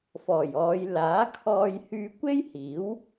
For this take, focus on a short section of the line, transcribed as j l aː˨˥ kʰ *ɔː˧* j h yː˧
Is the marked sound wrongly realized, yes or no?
no